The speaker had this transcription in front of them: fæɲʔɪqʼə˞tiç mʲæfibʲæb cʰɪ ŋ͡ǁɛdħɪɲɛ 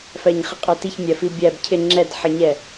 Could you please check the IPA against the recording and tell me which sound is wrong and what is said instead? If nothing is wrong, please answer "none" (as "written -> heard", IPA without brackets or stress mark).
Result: ʔ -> χ